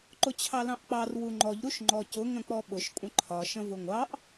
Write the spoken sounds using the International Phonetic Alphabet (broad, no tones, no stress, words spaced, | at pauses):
ǃʊt͡ɕʰɑlɑ̃ʔk͡pɑr wuŋ͡ǃɔʎ ɾuʃŋ͡ǃɔcʊ ŋə̃k͡pɔɓʊʃ kʷʼə̃ǃʰɒ ʃə̃vʊŋʷɑʔ